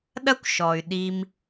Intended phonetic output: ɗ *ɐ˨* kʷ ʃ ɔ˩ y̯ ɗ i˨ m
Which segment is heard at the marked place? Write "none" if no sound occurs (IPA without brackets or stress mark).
ɐ˥